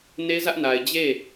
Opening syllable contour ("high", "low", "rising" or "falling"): high